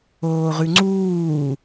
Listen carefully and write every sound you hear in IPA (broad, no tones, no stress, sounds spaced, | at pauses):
oː ʁ ʉ ŋ͡ǀ uː